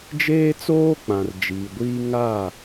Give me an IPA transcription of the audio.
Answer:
d͡ʒ eː˦ t͡s oː˦ k͡p ã˨ r d͡ʒ iː˨ ɡʷ iː˦ ŋ a˦˨

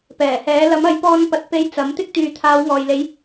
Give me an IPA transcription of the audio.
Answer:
p ɛː˨˩ h ɛː˨˥ l ɐ˨˥ m ɐ˨˥ j p ɔː˧ n p ɐ˨ t̚ p e˧ j t͡s ɐ˨˥ m t̪ ɪ˥ k̚ t̪ yː˨ t̪ʰ aː˨˧ w ŋ ɔː˨ j l e˨˥ j

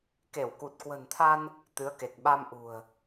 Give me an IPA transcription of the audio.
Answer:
k e˧˩ w k u˨˩ t̚ k w ə̤˨˩ n t̪ʰ a˧ n | t̪ ɨ˨˦ ə̯ k e˨˩ k̚ ɓ a˧ m ʔ ṳ˨˩ ə̯

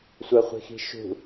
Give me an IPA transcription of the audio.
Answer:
sʷ ə χʷ i̤ x i̤ ʃ ṳ

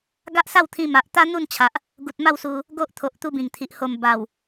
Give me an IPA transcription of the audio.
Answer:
ɡ a˦ ʔ s a˥˧ w t̪ʰ ĩ˧ m a˨ ʔ t̪ a˦ n̪ u˥˧ n t͡ɕʰ a˨ ʔ | ɡ u˨ t̚ m a˥˧ w s u˧ | ɡ o˦ ʔ t̪ʰ o˨ ʔ t̪ u˧ b ĩ˨˩ ŋ t̪ʰ i˨ ʔ h o˨˩ m b a˨˩ w

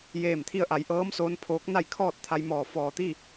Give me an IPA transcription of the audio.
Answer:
j eː˧˩ m t̪ʰ i˧ ə̯ ʔ a˩˧ j ʔ ɤː˧˥ m s oː˧˥ n pʰ oː˧˥ k̚ n a˥˨ j kʰ ɔː˥˨ t̚ t̪ʰ a˧ j m ɔː˧˩ f ɔː˧˩ t̪ i˥˨

